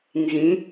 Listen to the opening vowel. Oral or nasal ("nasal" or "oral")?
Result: nasal